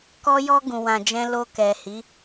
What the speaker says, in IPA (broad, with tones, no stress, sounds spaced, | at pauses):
k ɔ˦ j ɔ˦ ɡ ũ˧ w ã˧ d͡ʒ ɛ̃˦ l o˧ k ɛ˨ h i˨˦